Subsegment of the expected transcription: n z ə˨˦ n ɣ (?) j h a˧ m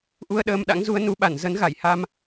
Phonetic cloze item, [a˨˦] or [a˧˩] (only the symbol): a˧˩